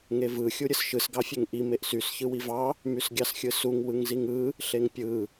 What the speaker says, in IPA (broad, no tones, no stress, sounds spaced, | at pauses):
ŋ e v ɯ xʲ u ɾʲ ɯ s ʃ ɯ s ɡ ɑ fʲ e ŋ ʔ i m e ʔ s y s ç ɯ w i v ɑ | m y s ɡʲ ɑ s xʲ ɯ s u ŋ w ɯ ŋ z i ŋ ɯ | ɬ e ŋ pʲ ɯ